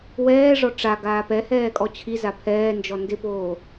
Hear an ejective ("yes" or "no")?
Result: yes